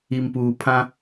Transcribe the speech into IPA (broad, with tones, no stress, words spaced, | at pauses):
i˨mpuː˨pʰã˦